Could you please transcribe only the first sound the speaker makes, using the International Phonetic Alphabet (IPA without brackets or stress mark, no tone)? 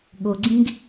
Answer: ɠ